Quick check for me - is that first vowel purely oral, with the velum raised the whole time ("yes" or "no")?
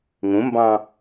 no